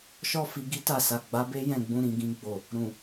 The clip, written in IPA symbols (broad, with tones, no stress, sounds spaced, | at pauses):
ʃ ɔ˦ f i˧ ɡ i˦ t a˦˨ s a˨ ɡ͡b a˨˦ b e˦ j ɛ̃˦˨ ɡ͡b ũ˧ ɾ ĩ˨ ɡ ĩ˧ ɡ͡b o˨ | ɾ ũ˨